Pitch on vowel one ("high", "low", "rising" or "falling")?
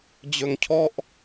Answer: high